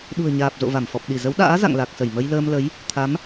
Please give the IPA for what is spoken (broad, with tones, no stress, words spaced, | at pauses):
ɗṳ˨˩ə̯ɲaː˨˩p̚ zo̰˧˨va˧˩mfɔ˨˩p̚ ɗi˧˩zə˨˦wɗa̰ː˧˥ za̰˧˨ŋla˨˩k̚sə˧˩j mə˧jləː˧mlə˨˦j | t̪ʰa˨˦m